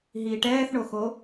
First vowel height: high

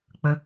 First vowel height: mid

